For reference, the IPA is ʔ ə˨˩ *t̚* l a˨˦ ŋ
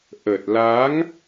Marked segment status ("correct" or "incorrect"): correct